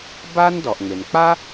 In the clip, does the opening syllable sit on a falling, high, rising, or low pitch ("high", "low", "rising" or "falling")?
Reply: high